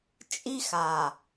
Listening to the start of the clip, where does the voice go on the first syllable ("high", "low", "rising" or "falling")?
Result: high